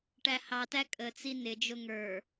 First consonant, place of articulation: retroflex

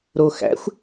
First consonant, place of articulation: alveolar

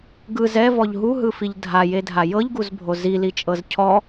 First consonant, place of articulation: velar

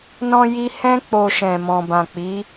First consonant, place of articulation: alveolar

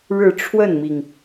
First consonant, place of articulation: retroflex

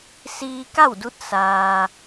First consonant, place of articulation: alveolar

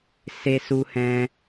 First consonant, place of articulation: alveolar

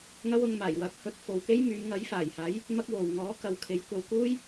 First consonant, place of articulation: velar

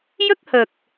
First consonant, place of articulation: palatal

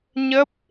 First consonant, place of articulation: palatal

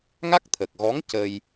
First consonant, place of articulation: velar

